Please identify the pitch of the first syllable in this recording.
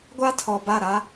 high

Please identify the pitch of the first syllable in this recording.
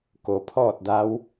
low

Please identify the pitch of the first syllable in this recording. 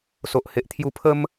low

